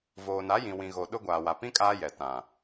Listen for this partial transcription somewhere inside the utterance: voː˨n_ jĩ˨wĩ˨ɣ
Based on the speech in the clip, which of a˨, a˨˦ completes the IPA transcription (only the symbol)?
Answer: a˨˦